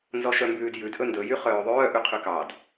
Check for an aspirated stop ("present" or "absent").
present